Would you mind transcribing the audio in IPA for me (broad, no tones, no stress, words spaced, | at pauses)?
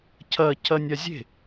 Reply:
cʰɐ cʰɐnʲazʲe̤